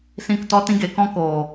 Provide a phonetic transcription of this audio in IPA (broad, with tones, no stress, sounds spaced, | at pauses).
s ĩ˦˨ k t ɔ˦ t ĩ˦ ɡ e˨˦ k ɔ̃˦ k oː˨